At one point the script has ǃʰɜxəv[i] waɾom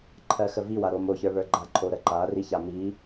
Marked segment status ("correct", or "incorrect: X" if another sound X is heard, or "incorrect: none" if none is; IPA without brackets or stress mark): correct